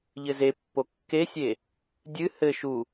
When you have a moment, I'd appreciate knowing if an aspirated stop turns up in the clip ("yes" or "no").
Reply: no